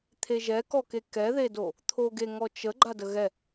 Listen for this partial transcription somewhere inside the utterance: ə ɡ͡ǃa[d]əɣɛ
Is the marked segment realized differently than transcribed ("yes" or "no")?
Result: no